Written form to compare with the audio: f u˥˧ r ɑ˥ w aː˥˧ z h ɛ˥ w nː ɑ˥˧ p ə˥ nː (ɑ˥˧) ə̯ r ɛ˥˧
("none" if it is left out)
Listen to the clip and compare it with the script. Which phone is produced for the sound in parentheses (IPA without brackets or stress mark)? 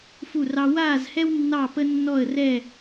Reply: ɔ˥˧